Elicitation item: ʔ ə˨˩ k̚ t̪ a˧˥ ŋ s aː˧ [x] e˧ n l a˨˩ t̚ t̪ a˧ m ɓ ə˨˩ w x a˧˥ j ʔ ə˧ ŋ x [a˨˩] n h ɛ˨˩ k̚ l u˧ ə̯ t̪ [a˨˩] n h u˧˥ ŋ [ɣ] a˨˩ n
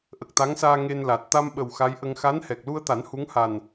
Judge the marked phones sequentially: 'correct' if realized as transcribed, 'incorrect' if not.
incorrect: ŋ, incorrect: a˧˥, incorrect: a˨˩˦, incorrect: h

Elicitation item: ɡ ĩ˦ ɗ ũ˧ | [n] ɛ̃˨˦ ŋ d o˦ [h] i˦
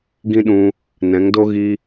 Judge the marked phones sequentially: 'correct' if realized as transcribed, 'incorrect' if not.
correct, incorrect: ɣ

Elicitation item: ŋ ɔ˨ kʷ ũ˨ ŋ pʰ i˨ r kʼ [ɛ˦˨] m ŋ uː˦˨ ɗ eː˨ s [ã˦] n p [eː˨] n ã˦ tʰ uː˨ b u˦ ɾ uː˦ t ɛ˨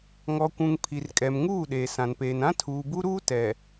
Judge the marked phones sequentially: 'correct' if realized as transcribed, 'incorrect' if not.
incorrect: ɛ˨, incorrect: ã˨, correct

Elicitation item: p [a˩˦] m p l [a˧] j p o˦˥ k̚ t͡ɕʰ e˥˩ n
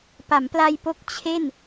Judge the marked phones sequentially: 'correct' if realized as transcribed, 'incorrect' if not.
correct, correct

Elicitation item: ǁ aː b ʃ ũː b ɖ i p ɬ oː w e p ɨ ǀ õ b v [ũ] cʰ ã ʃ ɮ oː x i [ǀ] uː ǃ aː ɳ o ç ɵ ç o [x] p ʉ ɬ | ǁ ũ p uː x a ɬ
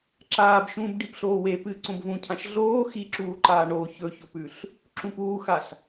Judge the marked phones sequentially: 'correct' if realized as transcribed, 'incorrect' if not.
correct, incorrect: ǁ, incorrect: none

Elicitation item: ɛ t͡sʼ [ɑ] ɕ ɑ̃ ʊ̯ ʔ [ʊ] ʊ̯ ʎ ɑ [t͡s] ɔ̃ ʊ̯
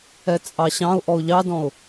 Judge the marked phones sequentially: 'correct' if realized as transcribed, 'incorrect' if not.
correct, incorrect: ɔ, incorrect: d

